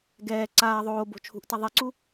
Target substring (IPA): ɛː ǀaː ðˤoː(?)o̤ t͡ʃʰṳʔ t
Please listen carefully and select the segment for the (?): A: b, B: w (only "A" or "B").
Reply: A